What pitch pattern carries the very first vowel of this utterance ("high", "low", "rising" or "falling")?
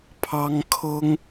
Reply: high